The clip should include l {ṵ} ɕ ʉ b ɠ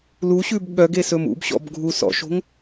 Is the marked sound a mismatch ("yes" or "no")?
yes